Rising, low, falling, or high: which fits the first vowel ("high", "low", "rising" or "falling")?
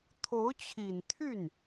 rising